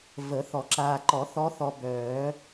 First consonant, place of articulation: labial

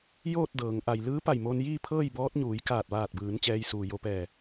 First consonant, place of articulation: palatal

